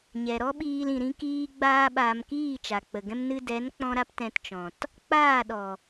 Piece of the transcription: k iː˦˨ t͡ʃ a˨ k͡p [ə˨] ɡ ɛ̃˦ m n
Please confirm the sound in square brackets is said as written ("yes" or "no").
yes